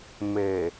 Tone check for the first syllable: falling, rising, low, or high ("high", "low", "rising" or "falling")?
low